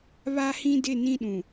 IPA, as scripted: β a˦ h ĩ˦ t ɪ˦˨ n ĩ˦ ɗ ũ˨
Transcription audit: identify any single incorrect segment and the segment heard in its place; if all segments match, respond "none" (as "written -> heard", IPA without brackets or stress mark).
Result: t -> d